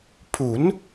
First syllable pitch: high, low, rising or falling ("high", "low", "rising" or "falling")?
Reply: rising